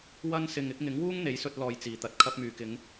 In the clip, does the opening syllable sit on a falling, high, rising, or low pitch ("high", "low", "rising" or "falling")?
high